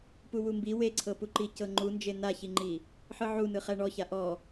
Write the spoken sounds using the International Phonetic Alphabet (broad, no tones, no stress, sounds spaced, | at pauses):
p u w u m b i w e ǀʰ ɤ p u ǃ i c ɤ ŋ͡ǃ u n d͡ʒ e n a ç i ŋ͡ǃ i | ħ ɯ ʕ u n ɯ χ ɛ ɳ ɔ ç a ʔ ɔ